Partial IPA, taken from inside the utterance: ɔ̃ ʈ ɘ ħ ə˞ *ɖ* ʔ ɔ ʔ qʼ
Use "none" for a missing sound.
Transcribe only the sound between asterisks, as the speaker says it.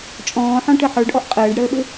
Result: ɖ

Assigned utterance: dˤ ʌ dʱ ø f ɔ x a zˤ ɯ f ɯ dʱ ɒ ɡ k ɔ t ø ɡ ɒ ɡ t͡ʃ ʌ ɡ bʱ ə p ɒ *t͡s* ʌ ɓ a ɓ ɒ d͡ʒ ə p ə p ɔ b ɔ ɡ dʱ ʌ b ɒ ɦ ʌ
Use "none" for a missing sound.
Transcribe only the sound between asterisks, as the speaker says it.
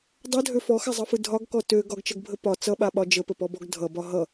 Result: t͡s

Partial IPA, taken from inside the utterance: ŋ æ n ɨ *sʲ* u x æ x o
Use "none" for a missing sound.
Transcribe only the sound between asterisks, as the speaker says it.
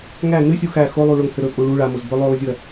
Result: sʲ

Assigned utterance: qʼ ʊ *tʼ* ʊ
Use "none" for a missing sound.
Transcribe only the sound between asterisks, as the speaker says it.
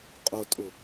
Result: tʼ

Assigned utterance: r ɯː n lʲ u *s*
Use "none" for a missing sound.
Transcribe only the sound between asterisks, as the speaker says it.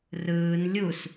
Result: s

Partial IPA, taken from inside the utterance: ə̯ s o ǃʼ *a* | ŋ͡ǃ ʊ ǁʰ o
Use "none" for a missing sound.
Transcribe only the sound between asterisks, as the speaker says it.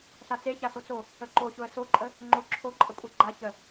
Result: ə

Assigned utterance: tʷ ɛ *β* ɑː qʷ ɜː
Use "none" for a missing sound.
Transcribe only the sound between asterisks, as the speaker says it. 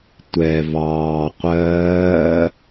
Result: β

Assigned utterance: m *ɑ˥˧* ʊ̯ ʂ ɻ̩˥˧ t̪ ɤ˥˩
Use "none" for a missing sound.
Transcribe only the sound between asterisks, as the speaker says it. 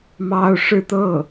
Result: ɑ˥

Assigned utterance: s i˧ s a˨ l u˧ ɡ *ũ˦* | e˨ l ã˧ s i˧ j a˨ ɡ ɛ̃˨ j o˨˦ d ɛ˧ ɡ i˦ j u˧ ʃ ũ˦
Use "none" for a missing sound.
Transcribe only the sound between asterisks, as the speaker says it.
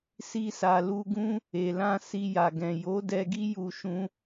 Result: ũ˦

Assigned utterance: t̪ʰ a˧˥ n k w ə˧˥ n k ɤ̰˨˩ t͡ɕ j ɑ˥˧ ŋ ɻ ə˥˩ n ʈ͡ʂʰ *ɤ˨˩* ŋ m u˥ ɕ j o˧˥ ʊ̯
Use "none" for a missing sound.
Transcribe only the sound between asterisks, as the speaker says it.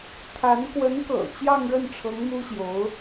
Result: ɤ˧˥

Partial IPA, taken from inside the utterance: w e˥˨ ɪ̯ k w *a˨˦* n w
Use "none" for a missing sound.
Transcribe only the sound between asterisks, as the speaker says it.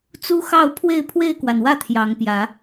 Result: a˩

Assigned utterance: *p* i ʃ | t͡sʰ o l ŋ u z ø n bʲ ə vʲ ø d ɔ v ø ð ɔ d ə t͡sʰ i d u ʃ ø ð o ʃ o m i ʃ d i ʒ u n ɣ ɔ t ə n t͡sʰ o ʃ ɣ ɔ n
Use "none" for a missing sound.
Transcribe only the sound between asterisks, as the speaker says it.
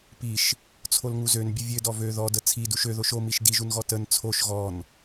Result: p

